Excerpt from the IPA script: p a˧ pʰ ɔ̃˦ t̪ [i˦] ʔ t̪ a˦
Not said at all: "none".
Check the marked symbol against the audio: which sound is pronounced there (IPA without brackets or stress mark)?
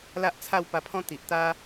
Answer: i˨